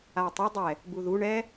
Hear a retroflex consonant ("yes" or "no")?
yes